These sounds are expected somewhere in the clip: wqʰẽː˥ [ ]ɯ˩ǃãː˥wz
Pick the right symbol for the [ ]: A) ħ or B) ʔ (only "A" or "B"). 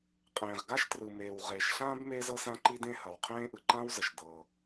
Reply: B